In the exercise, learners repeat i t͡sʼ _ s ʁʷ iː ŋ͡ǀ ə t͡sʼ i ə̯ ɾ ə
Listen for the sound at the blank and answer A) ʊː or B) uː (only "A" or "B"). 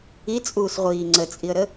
B